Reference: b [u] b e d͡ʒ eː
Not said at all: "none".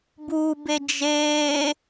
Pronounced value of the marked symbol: u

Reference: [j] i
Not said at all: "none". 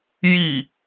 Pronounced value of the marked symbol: j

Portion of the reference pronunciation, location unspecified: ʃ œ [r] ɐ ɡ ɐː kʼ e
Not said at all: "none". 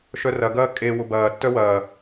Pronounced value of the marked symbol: r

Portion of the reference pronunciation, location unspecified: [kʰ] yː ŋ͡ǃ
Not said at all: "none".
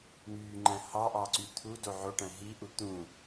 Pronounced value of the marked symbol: ŋ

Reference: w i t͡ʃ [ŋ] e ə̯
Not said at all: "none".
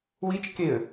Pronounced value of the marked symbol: k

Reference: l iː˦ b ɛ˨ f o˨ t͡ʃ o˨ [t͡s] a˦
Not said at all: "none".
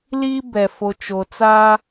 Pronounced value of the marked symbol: t͡s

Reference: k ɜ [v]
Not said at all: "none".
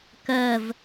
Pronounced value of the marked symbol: v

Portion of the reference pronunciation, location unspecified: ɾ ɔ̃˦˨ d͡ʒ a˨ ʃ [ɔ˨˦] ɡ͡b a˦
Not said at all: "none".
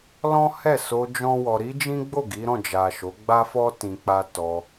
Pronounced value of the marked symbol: o˨˦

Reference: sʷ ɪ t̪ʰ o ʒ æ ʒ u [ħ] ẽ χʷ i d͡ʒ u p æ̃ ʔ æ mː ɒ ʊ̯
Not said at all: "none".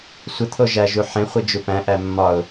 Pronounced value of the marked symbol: ħ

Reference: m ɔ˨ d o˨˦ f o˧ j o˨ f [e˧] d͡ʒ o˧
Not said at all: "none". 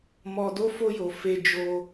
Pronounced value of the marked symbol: e˧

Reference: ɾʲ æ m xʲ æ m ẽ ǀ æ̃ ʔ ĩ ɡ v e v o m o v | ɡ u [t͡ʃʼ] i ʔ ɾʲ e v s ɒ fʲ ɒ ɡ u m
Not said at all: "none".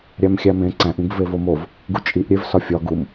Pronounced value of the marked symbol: t͡ʃʼ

